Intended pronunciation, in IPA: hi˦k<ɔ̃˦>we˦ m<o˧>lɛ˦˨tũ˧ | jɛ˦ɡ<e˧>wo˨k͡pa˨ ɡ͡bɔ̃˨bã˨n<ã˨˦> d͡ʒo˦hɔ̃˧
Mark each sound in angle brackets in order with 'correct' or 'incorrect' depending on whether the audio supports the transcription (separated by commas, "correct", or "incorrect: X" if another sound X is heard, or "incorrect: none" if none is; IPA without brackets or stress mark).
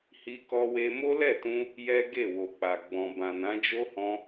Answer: incorrect: ɔ˦, incorrect: o˦, incorrect: e˦˨, correct